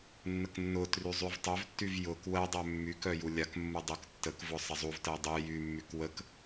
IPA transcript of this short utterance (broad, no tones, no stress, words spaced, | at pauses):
nːəknːʊtry zˤyvtˤœvtːyv jʊk wɜdˤœ mːykœ julʲakmːu dˤyktːəkvʊ sˤəzˤuvtɜ dˤy jymːyk wək